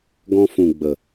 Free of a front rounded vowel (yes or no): yes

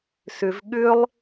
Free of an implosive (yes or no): no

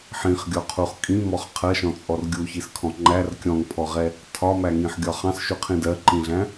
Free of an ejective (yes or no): no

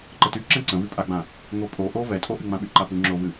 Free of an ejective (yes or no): no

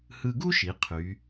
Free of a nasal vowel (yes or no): yes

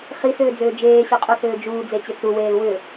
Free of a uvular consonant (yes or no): no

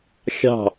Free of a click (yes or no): yes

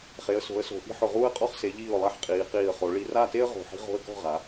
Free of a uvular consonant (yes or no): no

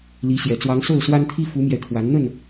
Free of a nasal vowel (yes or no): yes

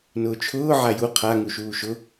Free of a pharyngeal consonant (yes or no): no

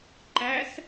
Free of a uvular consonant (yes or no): yes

